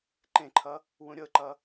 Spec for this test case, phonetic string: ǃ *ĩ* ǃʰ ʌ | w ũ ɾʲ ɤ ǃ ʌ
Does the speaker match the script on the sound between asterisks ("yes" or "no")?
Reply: no